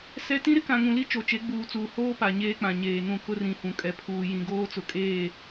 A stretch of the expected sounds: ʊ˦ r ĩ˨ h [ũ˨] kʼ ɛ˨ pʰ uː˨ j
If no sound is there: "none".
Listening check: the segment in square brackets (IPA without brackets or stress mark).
ũ˨